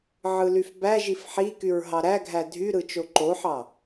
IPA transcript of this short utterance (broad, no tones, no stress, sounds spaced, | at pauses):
ʕ ɯ l y f b æ ʒ i f ħ i k y ɹ ɦ ɑ ɾ æ ɡʱ æ dʱ y ɾ ɯ t͡ʃ o ǃ o ħ ɑ